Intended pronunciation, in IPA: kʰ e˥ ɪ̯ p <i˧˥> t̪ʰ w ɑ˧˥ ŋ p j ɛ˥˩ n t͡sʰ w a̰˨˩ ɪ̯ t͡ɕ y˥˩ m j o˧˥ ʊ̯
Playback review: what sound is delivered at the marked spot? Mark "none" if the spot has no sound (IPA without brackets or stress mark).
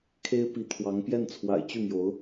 i˧˥